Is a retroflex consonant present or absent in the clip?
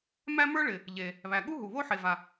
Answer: present